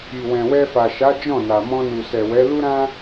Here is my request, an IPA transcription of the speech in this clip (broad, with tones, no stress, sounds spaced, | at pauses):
i˨ w ɛ̃˨ w ɛ˧ f a˨ ʃ a˨˦ d͡ʒ ɔ̃˦˨ n a˨ m ɔ̃˧ n u˨ s ɛ˨ w ɛ˨˦ l u˦ ɾ ã˦